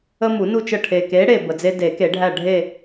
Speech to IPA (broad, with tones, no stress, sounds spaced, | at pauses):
ə˦ m u˨˩˦ n u˦˨ t͡ʃ ə˦˨ ʈʰ e˨˩ k e˨˥ ɽ e˨˩ b ə˨˩ d͡z e˦ d e˨˩˦ k e˨˩˦ ɖʱ æ˦˨ ɖʱ e˦˨